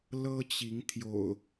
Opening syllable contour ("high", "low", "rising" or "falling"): high